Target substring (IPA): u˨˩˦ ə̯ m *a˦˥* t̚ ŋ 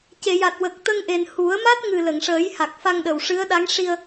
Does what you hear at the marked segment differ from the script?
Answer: no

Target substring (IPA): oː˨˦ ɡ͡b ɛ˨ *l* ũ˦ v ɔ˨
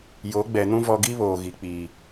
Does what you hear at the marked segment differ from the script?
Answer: yes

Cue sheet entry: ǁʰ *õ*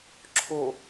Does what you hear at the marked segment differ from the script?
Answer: yes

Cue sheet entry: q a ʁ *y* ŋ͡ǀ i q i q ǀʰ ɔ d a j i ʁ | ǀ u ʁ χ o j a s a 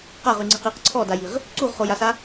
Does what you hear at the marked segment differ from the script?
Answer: no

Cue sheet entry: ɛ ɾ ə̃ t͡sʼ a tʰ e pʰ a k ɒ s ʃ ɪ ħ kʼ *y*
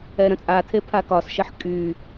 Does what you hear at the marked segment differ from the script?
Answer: no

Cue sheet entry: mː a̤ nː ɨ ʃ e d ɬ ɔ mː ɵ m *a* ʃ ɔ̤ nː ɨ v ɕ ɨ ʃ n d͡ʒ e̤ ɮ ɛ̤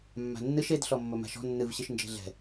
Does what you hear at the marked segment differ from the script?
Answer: yes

